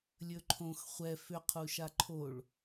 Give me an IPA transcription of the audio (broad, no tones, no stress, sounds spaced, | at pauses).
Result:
lʲ ɵ ǃʰ õ x χʷ ɛ f ʏ qʰ u ʃ a ǃʰ o ɭ